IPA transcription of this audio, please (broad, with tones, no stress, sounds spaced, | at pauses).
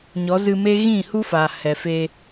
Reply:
ɲ ɔ˨˦ z ɨ˧ m e˦ ɣ ĩ˦˨ h u˦ f aː˨ h ɛ˨ f eː˧